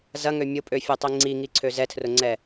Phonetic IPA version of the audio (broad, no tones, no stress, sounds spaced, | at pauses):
z ɐ ŋ ø mʲ ʊ pʼ ø fʲ ɛ tˤ i ŋ͡ǀ i ŋ i ǀʰ ø z ɛ tʰ r ʊ ŋ͡ǀ ɛ